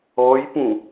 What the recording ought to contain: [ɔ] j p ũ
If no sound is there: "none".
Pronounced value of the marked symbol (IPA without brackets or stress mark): ɔ